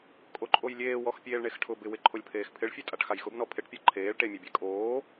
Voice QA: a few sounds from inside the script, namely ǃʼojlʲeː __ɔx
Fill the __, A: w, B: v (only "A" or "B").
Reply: A